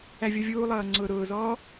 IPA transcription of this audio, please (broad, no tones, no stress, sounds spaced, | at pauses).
æ vʲ ʌ vʲ uː lˠ ʌː ŋ͡ǀ ʊː ɾ ʊː z ɔː